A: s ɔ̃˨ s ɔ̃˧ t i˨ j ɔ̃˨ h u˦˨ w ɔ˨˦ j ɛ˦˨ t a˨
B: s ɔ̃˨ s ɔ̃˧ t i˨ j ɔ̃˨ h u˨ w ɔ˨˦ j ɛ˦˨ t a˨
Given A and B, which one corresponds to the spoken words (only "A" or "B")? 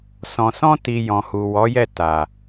B